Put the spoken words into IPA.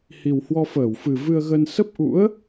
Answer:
h i˨˩ w h w ɔ˧ f əː˧˩ w f ɨ˨˩ v ɨ˧ ə̯ ɣ ə˧ n s ə˦˥ p̚ ʔ ṵ˧˥ ə̯

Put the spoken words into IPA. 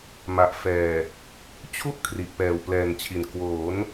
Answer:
m a˨˩ ʔ f ɛː˨˩ | t͡ɕʰ u˦˥ ʔ kʰ r i˨˩ ʔ p ɛː˨˩ w p l ɛː˨˩ n t͡ɕʰ i˨˩ n k w oː˩˦ n

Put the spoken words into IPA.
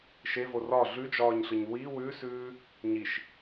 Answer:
ʃ e v o r ɒ ɮ ʉ d͡ʒ ɒː ɲ ɬ ɯ ɲ w i w ʉ s ʉː | ɲ i ʃ

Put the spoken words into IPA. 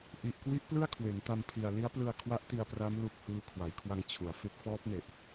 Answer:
ʔ i˨˩ ʔ k w i˦˥ ʔ p l ɯ˥˩ a̯ kʰ w e˩˦ n t a˧ m pʰ i˨˩ a̯ l i˦˥ a̯ p l ɯ˧ a̯ kʰ w a˦˥ ʔ t i˧ a̯ p r a˦˥ m l u˥˩ k̚ h ɯː˥˩ kʰ w a˩˦ j kʰ w a˧ ŋ t͡ɕʰ u˩˦ a̯ f e˦˥ k̚ f ɔː˦˥ p̚ n e˨˩ ʔ

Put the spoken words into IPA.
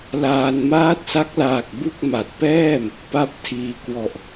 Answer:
l aː˧ n m aː˦˥ t̚ s a˦˥ k̚ l aː˨˩ k̚ b u˥˩ k̚ m a˨˩ t̚ p ɛː˥˩ m | p a˦˥ p̚ tʰ iː˧ k w ɔ˨˩ ʔ

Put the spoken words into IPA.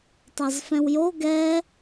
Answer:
tˤ ɑ z f ɛ̃ w j o ɡ ɛ

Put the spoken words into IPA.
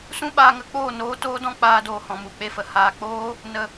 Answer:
s ũ˦ ɓ aː˧ ŋ ə˧ k͡p oː˦˨ n oː˧ t oː˦ d ɔ̃˦ k͡p aː˧ d oː˨ h ɔ̃˨ m u˨ k͡p e˧ f ə˨ h aː˨ k͡p oː˦ | n ə˧

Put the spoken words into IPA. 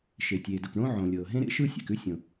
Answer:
ʃ e˩ tʲ eː˩ d ʊ˩ k ɳ õ˥ ʕ õ˩ lʲ ɤː˩ ɦ ẽ˥ ɾ ḛ˥ ʃ ɯ˥ sʲ ḛ˩ k ʉ˥ sʲ õ˩

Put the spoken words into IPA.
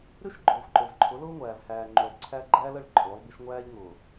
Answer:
ɾ y˦ ʃ ɡ͡ǃ ʊː˨ v ǃ o˨ v ǃʰ ʊ˨˦ l ʊː˦ ŋʷ æː˨ v h æː˨ ŋ͡ǃ yː˨ lˠ ǀʰ æ˦ ɡ͡ǃ æː˦ l ə˦˨ ɭ ǃʼ ʊː˨˦ lˠ b i˦ ʃ ŋʷ æː˦ ʎ ŋ ʊː˨

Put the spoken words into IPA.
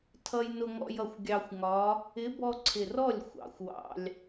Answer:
tʰ ʌ˧ j n ʊ˧ ŋ ɔ̰˧ j ʌ˨˩ xʷ ɡʲ ɑ˧ xʷ ŋ ɒ˧˥ | ɪ˧˥ b ɔ˧ ǀʰ ɪ˨˩ r ɔ˥˩ lʲ xʷ ɑ̰˨˩ xʷ w ɑ̰˧ lʲ

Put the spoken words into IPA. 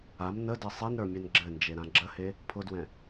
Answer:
a m n ə d ɘ sˤ i n ɾ ə˞ mʲ ɛ n ɡ͡ǁ ɘ n d͡ʒ e ɾ ã ɡ͡ǁ ə h e | pʰ ʊ d w ɛ̃

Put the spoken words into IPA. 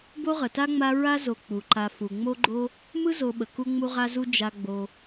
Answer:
b o˥ ʁ ə˩ t a˥ ŋ͡m a˦ ɹ a˥ z o˨ k͡p u˩ ǃ a˨ f u˩ ŋ͡m o˦ ɡ͡ǃ o˦ | m ɯ˥ z o˨ ɓ ə˩ k u˦ ŋ͡m u˦ ʁ a˦ z u˦ d͡ʒ a˦ ɡ͡b o˨

